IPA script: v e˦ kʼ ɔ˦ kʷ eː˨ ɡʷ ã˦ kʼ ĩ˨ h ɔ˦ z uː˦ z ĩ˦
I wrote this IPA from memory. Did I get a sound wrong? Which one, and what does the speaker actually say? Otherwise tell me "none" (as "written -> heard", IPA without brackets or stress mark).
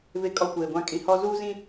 none